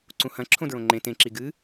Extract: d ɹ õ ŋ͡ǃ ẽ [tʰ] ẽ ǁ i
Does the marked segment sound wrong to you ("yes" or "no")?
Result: yes